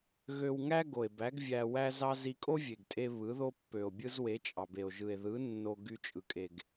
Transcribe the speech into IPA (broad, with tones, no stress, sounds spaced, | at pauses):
ɣ ø˧ w ŋ æ˦ ɡ o˨ e̯ b æ˨˦ ɡ vʲ æ˧ w æ˦ z ɑ˦ z i˧ kʼ o˦ vʲ e˨ ɡ tʼ e˧ β ɯ˨˦ ð o˦ pː ø˨ o̯ bʲ ɯ˦ z w e˨˦ t͡ʃʼ ɑ˨ b e˨ o̯ ʒ ɯ˨ e̯ ð ɯ˨˦ nː o˧ ɡ y˧ t͡ʃʼ ɯ˨ kʼ e˨ ɡ